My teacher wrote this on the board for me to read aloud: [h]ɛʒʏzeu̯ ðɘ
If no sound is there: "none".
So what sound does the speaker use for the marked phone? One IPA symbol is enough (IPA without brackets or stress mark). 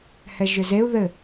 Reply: h